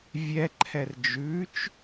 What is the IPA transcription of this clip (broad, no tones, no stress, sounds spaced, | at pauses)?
vʲ ɛ ǃʰ ɛ r d͡ʒ ʉ t͡ʃ